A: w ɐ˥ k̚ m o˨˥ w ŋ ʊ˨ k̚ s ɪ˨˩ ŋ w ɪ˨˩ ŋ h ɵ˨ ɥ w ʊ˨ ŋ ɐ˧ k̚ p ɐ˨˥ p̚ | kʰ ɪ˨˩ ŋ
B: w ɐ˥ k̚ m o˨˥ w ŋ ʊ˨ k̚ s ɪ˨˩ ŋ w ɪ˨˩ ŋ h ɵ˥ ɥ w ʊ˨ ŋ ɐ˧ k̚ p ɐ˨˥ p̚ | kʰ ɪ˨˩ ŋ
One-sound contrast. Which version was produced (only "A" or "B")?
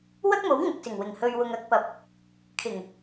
A